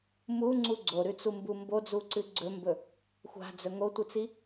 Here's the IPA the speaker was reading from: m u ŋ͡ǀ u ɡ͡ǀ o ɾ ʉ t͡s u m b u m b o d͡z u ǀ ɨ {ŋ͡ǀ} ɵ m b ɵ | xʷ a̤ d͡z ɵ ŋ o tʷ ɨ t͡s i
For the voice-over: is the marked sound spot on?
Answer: no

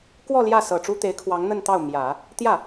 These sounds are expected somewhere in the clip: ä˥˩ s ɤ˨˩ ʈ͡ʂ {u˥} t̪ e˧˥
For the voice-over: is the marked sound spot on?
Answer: yes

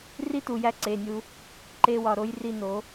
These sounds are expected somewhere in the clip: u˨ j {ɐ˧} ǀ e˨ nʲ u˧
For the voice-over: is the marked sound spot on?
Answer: no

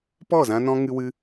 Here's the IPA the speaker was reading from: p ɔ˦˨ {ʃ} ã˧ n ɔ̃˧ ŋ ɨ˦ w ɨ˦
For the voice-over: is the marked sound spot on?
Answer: no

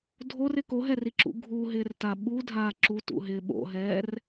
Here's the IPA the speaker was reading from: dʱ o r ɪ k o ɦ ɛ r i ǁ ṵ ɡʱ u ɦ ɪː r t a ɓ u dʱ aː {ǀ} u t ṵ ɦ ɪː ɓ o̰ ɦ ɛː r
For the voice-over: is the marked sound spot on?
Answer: no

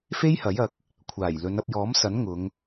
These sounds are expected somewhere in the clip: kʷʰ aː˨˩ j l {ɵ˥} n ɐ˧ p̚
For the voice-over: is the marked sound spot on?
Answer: no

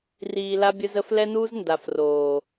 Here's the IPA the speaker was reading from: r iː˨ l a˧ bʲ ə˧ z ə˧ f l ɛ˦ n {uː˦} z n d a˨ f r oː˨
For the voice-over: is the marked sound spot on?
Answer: yes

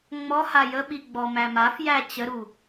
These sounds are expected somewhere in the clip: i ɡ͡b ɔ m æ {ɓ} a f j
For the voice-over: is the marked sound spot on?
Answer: no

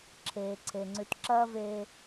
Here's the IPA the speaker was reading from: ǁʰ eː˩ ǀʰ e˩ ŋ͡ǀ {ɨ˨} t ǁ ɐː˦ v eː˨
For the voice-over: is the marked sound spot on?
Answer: no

